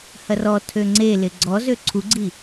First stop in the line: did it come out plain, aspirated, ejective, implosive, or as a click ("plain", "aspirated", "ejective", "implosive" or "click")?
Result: aspirated